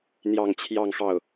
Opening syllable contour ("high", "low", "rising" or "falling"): falling